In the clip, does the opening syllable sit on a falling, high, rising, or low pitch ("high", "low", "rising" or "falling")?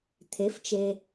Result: rising